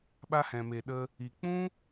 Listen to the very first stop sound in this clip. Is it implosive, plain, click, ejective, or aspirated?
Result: implosive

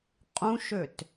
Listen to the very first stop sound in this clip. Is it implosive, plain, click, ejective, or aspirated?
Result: ejective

